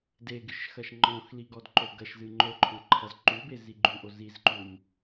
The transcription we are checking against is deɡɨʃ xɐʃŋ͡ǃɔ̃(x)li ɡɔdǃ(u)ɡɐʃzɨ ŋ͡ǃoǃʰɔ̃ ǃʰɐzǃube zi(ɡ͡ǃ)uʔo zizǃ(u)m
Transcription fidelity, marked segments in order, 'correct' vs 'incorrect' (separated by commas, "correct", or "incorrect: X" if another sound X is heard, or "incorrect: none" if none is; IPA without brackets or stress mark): correct, incorrect: o, correct, correct